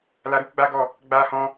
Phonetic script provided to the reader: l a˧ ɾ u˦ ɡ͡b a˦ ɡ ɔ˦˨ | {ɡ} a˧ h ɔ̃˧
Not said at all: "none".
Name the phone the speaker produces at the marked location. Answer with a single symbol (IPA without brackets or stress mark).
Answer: ɡ͡b